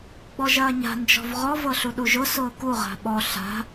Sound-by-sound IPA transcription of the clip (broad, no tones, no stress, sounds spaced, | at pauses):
ɡ͡b ɔ ʒ ɐː ɲ a̤ n d͡ʒ ɔ̤ v ʁ ɔ v ɤ ɬ u ɗ u ʒ ʊ s ʊː k u ʁ a̤ ɓ ɔ ɬ a̤